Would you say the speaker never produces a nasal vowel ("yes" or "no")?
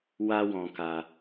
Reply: no